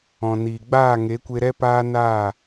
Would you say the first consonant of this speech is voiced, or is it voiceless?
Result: voiced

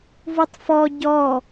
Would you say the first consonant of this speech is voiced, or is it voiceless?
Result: voiced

